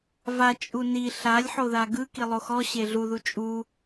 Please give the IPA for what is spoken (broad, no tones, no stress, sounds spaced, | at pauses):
v a t͡ʃʼ u n i ɬ a lʲ ħ o ð a ɡ ɯ k i lˠ o x ɔ ɕ e ɮ u ð u t͡ʃʼ u